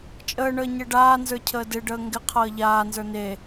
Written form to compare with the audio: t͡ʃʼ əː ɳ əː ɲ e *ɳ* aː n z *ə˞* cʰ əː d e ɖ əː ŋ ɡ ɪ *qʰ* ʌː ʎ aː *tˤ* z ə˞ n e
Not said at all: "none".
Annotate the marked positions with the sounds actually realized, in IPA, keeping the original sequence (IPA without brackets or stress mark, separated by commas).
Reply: ɖ, ə˞, qʰ, n